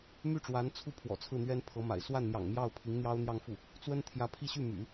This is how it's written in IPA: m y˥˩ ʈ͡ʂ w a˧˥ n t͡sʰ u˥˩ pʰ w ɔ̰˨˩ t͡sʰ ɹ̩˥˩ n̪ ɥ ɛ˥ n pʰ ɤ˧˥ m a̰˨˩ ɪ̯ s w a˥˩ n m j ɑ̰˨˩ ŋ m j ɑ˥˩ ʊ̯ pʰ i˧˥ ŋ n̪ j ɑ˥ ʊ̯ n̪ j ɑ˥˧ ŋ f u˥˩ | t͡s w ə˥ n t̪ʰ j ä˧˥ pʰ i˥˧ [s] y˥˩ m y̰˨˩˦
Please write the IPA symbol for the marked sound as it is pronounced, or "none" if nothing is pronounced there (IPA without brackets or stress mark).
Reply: ɕ